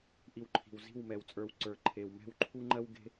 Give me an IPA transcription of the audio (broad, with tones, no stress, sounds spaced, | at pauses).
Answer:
ʔ i˧ w ǃʰ i̤˨ w z i̤˦˨ w m ɛ˨ w t͡sʼ ə˞˧ w ǀ ə˞˨ ǃʰ e˨ w m ɛ̤˦˨ w ǃʰ u˦ ŋ͡ǃ ɜ˦ w ɡ e̤˦